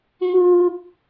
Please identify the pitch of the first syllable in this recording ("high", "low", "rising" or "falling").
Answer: high